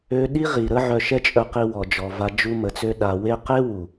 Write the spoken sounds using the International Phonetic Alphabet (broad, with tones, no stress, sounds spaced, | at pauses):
ø˧ ɗ i˦ ʁ i˨ ɾ ə˦ ʕ œ˧ ʃ ɛ˦ t͡ʃʼ œ˧ q i˧ w ɔ˨ d͡ʒ ɔ˨ v a˧ d͡ʒ u˦ m ə˧ t͡s ø˦ ɗ a˧ w e˦ q e˦ w u˨